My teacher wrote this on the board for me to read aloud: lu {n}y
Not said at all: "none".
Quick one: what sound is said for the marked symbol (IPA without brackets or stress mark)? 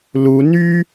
n